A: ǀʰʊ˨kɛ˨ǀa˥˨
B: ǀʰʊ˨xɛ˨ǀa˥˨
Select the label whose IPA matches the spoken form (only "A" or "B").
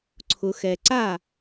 B